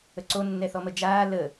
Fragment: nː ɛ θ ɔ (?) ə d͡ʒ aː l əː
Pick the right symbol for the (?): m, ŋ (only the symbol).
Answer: m